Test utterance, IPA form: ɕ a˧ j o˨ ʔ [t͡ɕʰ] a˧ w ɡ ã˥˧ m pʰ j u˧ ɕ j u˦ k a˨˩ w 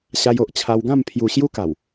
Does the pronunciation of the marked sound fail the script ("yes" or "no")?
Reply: no